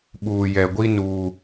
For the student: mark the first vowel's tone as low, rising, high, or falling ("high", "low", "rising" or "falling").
low